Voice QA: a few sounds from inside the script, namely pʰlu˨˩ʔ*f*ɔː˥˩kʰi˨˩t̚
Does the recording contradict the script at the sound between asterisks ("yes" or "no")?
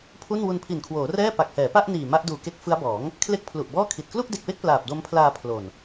yes